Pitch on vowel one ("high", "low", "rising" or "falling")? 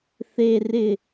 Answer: high